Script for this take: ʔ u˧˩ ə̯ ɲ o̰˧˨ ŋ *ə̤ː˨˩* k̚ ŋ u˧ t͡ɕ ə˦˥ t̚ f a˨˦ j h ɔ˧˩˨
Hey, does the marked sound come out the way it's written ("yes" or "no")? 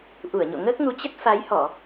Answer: no